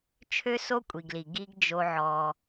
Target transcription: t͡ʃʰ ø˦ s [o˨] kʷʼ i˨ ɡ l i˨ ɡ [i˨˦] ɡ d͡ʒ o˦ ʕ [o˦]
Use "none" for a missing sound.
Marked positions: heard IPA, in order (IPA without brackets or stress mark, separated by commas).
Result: o˦, i˦, ɔ˦